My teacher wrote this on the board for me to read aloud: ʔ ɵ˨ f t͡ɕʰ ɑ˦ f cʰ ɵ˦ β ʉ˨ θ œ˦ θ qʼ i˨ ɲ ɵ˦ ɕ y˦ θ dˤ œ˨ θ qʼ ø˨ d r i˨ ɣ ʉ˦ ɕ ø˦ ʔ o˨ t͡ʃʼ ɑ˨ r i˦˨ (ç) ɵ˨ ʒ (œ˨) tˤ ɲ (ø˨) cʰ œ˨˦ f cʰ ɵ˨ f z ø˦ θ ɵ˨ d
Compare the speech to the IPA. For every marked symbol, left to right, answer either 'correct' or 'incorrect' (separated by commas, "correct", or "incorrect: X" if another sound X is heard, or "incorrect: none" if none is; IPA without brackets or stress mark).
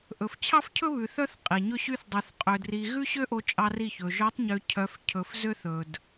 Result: correct, incorrect: œ˨˦, correct